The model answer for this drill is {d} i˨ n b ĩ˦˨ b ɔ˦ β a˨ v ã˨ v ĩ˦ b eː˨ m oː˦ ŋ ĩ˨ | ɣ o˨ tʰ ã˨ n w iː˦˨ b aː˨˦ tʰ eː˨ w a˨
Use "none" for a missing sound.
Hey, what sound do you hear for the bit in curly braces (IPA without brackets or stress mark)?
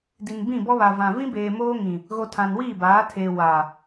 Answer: d